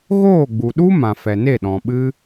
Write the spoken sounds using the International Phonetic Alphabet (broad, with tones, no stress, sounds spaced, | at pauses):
ɣ oː˦˨ ɡ͡b u˨ ɗ u˦ m ã˨ f ɛ˨ n e˦˨ ɗ ɔ̃˨ ɓ ɨ˦